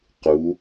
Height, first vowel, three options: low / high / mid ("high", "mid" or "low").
high